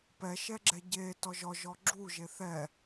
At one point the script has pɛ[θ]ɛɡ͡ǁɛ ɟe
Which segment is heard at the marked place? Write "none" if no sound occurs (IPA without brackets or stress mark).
ʃ